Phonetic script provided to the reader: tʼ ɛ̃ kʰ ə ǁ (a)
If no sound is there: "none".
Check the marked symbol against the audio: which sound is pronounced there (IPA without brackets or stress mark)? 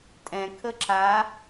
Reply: a